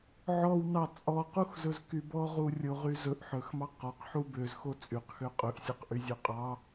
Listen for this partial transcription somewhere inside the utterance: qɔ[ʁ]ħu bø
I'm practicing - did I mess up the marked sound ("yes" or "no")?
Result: yes